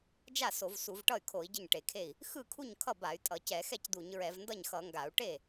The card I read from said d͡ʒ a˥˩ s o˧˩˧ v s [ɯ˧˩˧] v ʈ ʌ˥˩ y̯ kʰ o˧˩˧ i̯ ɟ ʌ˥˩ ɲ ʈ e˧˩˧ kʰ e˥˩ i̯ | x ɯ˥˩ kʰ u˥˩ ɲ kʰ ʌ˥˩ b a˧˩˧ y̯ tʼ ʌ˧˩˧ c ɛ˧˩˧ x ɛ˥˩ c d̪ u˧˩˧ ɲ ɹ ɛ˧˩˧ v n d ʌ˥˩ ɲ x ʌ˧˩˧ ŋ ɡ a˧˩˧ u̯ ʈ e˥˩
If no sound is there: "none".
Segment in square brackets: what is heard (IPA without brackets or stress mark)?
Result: u˧˩˧